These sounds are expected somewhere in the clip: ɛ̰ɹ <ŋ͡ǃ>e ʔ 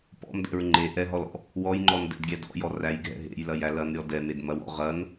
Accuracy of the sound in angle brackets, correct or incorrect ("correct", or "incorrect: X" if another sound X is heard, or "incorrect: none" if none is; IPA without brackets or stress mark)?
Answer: correct